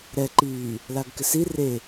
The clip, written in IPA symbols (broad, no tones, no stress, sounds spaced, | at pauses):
ɾ ɛ ǃ iː | l a ɡ k ɪ s i r e